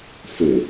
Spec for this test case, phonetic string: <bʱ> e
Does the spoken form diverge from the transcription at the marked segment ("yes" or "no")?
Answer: yes